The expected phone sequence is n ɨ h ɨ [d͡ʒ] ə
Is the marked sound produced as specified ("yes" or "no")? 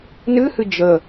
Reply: yes